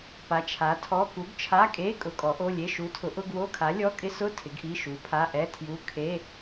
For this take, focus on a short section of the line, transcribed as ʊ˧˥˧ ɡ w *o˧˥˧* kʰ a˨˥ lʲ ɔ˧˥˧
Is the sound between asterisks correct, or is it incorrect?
correct